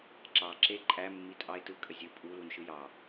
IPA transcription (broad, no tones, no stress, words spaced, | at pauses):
ǁɑ ǁe ǃʼæ mːitʼɑe̯tɯ kʼəzʲɯ pʼu lunʃɯjɑ